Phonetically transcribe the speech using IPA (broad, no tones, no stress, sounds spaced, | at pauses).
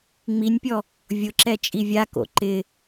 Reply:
ŋ͡m i nʲ pʲ ɔ | vʲ ʊ ǁ ɛ t͡ʃʼ i vʲ a k o̰ ǃ ɪ